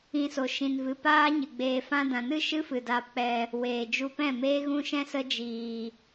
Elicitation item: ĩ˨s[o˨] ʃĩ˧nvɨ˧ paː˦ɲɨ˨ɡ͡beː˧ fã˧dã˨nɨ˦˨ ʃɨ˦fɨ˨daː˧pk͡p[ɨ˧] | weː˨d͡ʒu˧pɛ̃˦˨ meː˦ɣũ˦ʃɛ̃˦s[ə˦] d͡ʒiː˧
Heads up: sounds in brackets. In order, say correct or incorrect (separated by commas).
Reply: correct, incorrect, correct